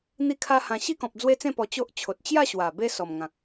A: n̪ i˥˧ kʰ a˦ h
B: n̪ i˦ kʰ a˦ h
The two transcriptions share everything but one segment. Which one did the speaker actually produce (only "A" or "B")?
A